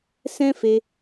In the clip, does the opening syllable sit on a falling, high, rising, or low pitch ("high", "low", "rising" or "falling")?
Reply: high